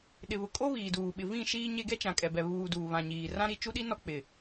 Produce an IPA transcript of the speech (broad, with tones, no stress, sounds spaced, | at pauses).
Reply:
ɗ ɪ˨ β ʊ˨ kʼ o˦ β iː˨ d uː˨ ɓ ɪ˨ v ĩ˦˨ ʃ iː˦ ɲ e˦ ɡ ɛ˦ t͡ʃ ã˨ kʼ ɛ˨ b ɛ˨ β uː˨ d uː˨ β ã˨ ɲ iː˨ r ã˦ ɾ i˦˨ t͡ʃ u˦ ɗ i˦ n ɔ˦ k͡p ɪ˨